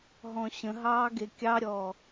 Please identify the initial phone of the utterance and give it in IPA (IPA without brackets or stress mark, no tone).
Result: ɦ